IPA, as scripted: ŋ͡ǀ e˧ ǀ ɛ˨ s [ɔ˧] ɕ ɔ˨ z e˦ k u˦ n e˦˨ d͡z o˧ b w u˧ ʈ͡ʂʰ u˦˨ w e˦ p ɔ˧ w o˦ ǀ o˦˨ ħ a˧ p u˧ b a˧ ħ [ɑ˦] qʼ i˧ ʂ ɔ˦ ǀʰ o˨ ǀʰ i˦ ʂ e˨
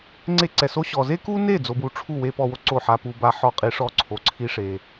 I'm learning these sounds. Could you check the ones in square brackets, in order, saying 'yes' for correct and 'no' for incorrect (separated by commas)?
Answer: no, no